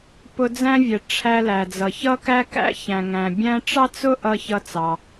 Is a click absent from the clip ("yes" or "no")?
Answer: yes